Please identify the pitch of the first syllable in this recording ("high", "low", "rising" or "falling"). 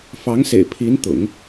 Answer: rising